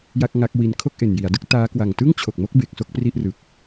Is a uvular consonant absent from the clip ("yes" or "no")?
yes